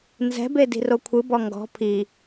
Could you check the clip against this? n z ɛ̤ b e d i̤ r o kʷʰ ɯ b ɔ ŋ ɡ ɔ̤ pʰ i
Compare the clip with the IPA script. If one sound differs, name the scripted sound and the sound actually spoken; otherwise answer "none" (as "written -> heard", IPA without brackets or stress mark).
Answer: none